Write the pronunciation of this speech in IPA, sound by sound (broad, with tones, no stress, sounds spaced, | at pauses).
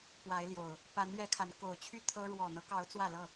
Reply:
p w a˨˦ ɪ̯ l j o˨˩ ʊ̯ | p a˨˦ n ɥ ɛ˨˦ kʰ a˨˦ n k o˨˩ ʊ̯ t͡ɕʰ y˦ t̪ʰ ɤ˦ ɻ w ɔ˨˩ n̪ ɤ˦ k ɑ˨˦ ʊ̯ t͡s w ä˥˨ l ɤ˥˨